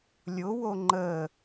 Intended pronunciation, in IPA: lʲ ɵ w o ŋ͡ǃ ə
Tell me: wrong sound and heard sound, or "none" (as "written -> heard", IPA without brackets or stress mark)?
ɵ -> ʊ